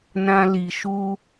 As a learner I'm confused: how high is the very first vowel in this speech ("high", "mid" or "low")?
low